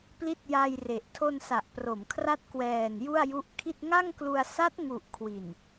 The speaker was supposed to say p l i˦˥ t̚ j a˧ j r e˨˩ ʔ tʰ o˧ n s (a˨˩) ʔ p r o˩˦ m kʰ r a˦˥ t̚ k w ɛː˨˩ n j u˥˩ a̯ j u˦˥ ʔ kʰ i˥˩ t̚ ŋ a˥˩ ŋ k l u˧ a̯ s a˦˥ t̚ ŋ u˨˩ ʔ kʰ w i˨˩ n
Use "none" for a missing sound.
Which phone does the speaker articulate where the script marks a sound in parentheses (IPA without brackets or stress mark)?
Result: a˨˩